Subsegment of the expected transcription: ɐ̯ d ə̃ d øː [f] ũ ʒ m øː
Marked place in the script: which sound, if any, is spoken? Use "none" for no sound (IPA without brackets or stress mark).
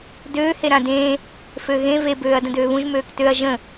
β